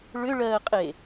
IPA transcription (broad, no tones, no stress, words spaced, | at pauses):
ɭʏɭɜːqʼe